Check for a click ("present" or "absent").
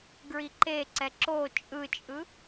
present